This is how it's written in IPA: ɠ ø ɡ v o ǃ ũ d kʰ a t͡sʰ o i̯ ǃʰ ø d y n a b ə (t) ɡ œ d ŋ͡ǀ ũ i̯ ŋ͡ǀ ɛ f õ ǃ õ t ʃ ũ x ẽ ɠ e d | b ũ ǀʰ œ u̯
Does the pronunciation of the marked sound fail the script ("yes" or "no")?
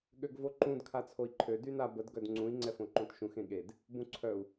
yes